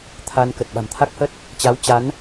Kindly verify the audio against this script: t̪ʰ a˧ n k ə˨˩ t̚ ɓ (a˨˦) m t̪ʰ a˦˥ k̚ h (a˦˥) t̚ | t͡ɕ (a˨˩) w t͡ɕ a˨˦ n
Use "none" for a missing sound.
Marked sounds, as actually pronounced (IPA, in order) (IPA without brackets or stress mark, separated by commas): a̤˨˩, ə˦˥, a˨˦